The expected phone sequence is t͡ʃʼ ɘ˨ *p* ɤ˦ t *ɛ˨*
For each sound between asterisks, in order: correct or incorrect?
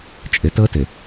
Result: incorrect, incorrect

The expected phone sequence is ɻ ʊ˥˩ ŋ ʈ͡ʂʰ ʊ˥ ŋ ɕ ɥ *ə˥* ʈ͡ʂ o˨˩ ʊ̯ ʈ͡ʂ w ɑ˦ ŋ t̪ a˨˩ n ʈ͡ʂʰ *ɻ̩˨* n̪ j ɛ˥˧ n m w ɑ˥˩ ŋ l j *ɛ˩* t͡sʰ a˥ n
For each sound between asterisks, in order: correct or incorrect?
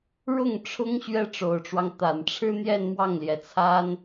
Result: incorrect, incorrect, correct

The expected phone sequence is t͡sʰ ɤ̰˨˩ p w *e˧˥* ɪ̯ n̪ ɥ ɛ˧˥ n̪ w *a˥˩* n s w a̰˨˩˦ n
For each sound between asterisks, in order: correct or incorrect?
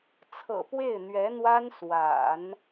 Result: incorrect, incorrect

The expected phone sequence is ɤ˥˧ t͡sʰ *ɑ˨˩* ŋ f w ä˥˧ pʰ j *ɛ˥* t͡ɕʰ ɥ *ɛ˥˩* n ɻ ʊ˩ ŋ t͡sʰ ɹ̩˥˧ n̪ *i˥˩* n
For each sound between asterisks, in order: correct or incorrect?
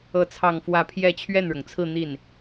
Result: incorrect, incorrect, correct, correct

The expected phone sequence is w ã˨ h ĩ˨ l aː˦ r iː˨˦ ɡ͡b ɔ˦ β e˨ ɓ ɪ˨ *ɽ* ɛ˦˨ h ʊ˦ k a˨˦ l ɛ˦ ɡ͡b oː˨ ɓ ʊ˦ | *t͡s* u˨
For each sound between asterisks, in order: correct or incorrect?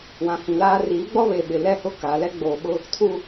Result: incorrect, incorrect

